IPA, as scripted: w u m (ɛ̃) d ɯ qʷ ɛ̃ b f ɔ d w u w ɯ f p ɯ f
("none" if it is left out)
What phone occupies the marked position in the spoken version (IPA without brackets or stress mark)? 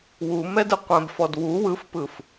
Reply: ɛ